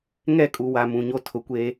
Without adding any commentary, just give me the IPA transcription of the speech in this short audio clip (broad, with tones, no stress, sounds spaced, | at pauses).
ŋ ɛ˦˨ kʼ u˨ w a˨ m ũ˨ ɲ o˦ tʰ ʊ˨ kʷ eː˦